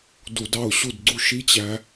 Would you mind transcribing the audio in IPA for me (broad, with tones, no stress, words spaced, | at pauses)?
du˧˩˧dɑ˥˩ʊ̯ɕu˥˩dɡ͡ǀu˥˩ ʃi˦˥ t͡ɕæ˦˥